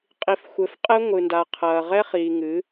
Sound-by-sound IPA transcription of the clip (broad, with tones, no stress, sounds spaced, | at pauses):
qʼ i˨˦ f xʷ ɘ˨˦ f qʼ ɛ˦ ŋʷ ɨ˨ n d a˨ qʰ ɐː˨ ʁ ɛ˦ χ iː˨ ŋ ɨ˨˦